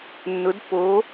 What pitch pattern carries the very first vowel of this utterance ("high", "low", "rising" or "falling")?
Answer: rising